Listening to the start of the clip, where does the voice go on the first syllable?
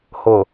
low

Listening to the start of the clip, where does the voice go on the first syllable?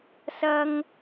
high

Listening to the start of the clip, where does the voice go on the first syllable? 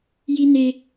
high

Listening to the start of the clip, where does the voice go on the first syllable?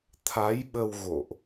rising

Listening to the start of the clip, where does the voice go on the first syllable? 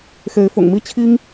rising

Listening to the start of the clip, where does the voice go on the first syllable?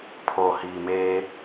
low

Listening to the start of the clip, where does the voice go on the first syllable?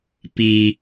low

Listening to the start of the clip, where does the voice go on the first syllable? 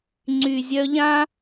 low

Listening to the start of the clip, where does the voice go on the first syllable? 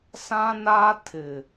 high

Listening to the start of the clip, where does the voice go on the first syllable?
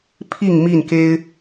falling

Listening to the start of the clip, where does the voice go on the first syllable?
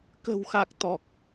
low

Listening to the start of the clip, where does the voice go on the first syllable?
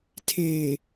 low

